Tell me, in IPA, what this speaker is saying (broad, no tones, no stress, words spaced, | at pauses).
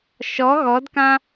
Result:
ʃɔ ɣɔdkã